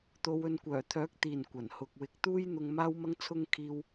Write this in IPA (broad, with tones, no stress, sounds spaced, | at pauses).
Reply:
t̪ o˨˧ w ɵ˨˧ n kʷ œː˨˩ t̪ʰ œː˨˥ k̚ t̪ iː˨˩ n kʷ ɐ˨˩ n h ʊ˨ k̚ w ɪ˨˥ k̚ t̪ uː˥ j n̪ ʊ˧ ŋ m aː˥ w m ɐ˥ ŋ t͡sʰ ʊ˥ ŋ kʰ iː˥ w